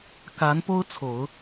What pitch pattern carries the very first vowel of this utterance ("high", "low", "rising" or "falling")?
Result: rising